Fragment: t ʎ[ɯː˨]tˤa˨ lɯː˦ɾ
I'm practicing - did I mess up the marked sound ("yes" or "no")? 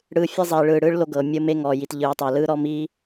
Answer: no